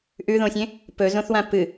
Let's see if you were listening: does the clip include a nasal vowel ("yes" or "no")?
yes